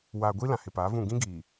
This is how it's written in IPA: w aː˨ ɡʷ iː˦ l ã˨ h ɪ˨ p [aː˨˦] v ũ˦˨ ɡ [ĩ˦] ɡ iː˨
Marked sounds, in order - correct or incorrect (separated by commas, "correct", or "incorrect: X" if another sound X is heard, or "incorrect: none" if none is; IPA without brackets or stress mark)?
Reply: correct, correct